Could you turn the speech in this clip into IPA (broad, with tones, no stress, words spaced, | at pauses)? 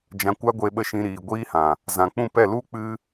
d͡ʒã˧kʷa˦ɡʷe˧ɓə˦˨ ʃĩ˧ɾiː˨ ɡʷiː˦hã˨ | zã˨k͡pũ˦˨pɛ˦˨ lu˦ k͡pɨ˦